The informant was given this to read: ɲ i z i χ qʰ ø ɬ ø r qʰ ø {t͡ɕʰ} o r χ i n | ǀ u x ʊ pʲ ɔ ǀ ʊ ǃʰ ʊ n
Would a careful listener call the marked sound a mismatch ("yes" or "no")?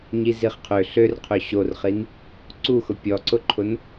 yes